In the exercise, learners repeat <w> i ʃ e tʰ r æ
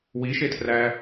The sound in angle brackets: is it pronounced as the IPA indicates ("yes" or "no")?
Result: yes